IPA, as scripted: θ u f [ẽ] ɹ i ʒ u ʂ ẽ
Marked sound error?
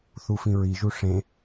yes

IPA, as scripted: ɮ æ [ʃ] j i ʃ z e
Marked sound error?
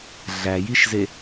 yes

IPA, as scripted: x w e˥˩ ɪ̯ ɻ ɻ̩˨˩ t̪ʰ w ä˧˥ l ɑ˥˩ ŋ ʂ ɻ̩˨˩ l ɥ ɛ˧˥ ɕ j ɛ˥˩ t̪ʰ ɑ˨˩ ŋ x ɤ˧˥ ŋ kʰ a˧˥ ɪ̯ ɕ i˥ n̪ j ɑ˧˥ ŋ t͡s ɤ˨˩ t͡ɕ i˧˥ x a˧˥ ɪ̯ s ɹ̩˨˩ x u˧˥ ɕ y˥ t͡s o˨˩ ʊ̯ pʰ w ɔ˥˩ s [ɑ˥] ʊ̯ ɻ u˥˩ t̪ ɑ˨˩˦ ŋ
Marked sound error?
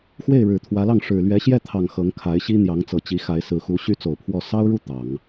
no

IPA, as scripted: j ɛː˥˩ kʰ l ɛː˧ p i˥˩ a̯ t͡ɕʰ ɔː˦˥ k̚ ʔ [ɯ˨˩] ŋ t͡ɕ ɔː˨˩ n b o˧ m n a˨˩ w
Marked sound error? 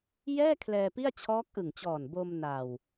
no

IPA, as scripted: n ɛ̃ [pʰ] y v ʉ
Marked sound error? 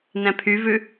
no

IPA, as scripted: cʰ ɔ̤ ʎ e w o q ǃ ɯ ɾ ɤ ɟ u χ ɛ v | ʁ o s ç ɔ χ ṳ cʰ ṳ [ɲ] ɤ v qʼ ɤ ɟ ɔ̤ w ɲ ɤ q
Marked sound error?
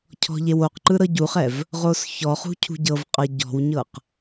yes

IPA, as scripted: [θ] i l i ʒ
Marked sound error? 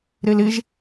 yes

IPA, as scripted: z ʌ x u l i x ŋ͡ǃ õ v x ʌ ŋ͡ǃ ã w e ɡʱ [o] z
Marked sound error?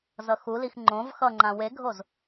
no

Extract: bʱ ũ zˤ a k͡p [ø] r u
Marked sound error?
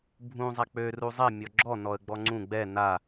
no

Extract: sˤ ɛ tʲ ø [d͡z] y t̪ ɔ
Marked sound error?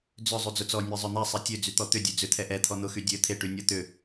no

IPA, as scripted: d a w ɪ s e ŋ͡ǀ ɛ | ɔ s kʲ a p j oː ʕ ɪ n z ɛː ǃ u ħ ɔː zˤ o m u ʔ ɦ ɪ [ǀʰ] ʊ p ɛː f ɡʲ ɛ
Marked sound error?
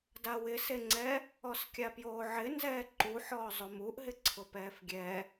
no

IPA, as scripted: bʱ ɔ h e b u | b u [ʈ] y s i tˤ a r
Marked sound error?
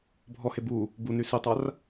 yes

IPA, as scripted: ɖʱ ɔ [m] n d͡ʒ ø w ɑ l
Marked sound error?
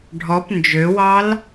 yes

